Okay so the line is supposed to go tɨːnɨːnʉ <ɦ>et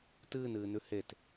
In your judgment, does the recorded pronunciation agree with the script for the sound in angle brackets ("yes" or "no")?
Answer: no